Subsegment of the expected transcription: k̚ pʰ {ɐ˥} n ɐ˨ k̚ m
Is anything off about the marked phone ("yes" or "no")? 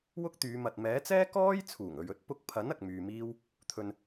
yes